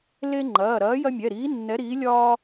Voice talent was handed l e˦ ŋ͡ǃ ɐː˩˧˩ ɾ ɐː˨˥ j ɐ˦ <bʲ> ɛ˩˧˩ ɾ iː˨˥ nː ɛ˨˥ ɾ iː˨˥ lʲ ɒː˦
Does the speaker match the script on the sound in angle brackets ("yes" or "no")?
no